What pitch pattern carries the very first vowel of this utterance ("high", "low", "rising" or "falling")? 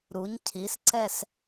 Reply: rising